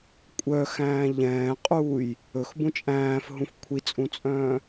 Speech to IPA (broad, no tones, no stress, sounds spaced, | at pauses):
kʷʼ œ x æ̃ː ʎ ɛ̃ː qʼ uː j | ɵ x b ũ t͡ʃʼ æ̃ː f ɦ ũ f kʷʰ i t͡sʼ ũ t͡sʼ œ̃ː